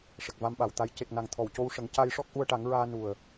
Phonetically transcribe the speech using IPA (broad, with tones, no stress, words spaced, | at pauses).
ʂə˨˩k̚va˧mɓa˨˩wt̪a˧j ce˨˩k̚ na˨˩ŋ t̪ʰɔ˨˩wco˧wʂə˨˩˦ŋ ca˧jʂɔ˦˥k̚ ʔu˧ə̯ʈa˨˩˦ŋɹaː˧ nu˨˩ə̯